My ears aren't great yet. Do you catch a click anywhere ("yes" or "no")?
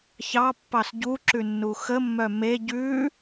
yes